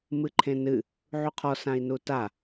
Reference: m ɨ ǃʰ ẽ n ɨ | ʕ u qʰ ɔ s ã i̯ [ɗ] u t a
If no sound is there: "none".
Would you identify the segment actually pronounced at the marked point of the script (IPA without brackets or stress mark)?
n